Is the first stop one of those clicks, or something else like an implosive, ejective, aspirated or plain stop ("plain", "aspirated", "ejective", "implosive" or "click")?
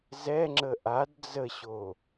click